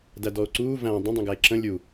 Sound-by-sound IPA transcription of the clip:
dædɔo̯ǀuː væ̃ dˤə̃dˤĩɡæe̯ ǁə̃ lʲu

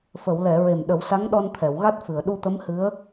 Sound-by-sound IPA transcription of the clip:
fə˨˩˨wlɛ˨˩˨ ɹe˨˩mɗə˨˩˦wsa˧˥ŋɗɔ˧n t̪ʰɛ˨˩˨wɣa˦˥t̚ fɨ˨˩˨ə̯ɗu˧t̪ə˧˥mhɨ˧˥ə̯

